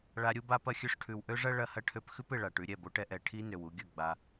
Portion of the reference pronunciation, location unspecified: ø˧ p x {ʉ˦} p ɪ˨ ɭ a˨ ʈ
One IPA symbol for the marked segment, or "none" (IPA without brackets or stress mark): ʉ˦